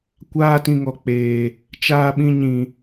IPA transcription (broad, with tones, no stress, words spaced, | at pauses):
kʷaː˦tĩ˧ŋɔ˨k͡peː˨ | t͡ʃaː˧ɓĩ˧ ɲĩ˨